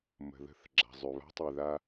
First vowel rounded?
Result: no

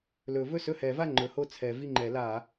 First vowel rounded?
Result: yes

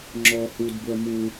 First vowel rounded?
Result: yes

